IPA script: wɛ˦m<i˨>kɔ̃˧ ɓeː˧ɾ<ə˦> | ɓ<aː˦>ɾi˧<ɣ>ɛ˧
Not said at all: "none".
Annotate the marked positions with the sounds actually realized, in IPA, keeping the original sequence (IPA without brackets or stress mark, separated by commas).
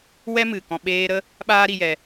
ɨ˨, ə˦, aː˦, j